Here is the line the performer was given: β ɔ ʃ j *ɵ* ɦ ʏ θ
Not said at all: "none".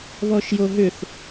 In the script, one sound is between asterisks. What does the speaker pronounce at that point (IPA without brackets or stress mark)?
o